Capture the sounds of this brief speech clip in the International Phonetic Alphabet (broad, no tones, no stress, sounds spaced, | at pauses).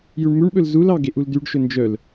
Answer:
j ʉ ɳ m ʉ ɳ ɓ ɵ l z u l ɑ ɡ e ʔ u l d y ɖ ʃ ɵ n d͡ʒ œ l